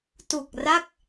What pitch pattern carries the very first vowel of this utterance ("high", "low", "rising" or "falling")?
low